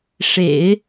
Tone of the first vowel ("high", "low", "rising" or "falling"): low